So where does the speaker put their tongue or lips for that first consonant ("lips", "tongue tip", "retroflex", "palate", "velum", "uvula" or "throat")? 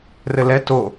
tongue tip